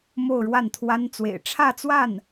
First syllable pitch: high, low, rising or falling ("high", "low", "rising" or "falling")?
falling